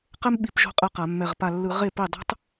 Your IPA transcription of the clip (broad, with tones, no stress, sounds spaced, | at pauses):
q ɛ˥ m ɓ i˧˩˧ p ʒ o̤˥˧ qʼ ɛ˥˩ q a˧˩˧ mː ɛ˧˩ ʁ p a˧˩ lː ɯ˧˩˧ ʁ e˥˩ p i˥˩ dˤ o̤˥ tˤ